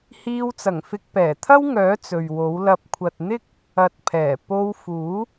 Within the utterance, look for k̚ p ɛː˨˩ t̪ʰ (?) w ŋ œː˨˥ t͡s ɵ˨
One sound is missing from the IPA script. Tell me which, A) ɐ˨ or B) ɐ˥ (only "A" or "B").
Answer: B